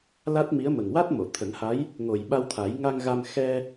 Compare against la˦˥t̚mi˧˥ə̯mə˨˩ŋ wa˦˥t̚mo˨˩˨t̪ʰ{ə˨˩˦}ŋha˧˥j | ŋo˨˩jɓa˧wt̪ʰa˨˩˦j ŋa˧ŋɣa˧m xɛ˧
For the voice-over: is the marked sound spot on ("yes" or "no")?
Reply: yes